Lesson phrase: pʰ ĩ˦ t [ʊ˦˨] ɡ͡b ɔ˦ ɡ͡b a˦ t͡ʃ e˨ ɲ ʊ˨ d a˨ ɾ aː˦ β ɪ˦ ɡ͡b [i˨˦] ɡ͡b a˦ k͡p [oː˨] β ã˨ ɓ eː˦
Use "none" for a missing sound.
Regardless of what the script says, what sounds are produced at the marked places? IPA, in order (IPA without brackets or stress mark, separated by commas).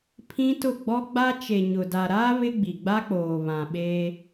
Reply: ʊ˦˨, i˨, oː˨